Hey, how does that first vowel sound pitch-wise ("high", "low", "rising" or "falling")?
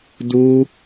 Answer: high